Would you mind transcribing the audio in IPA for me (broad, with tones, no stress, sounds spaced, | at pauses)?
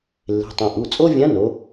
lː e̤˩˧˩ tˤ ũ˩ ʔ u˩˧˩ t͡sʼ o˥ vʲ ã˧˥ n o˩˧